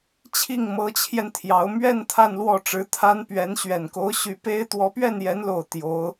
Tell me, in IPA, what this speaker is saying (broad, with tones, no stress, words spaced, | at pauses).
t͡ɕʰi˥˩ŋ mɤ˧˥t͡ɕʰjɛ˧n t̪ʰjɑ˧˥ʊ̯ mɥɛ˥˧n t̪ʰa˥˧nlwɔ˥˩ʈ͡ʂɻ̩˧˥ t̪ʰa˥npɥɛ˧˥n ɕɥɛ˨˩nko˧˥ʊ̯ ɕy˧˥ pe˥ɪ̯ t̪wɔ˧˥pɥɛ˥˩njɛ˧˥nlo˨˩ʊ̯ t̪jo˧˥ʊ̯